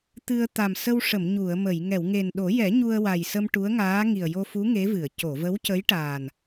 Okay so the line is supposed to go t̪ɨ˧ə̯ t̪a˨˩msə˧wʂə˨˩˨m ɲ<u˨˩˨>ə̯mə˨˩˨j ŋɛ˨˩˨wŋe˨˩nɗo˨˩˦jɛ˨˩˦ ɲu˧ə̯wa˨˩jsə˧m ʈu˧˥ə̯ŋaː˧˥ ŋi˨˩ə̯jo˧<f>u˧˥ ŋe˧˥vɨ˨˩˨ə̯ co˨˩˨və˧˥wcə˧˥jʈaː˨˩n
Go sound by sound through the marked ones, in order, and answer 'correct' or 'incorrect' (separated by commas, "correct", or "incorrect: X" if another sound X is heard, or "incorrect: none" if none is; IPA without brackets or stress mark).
correct, correct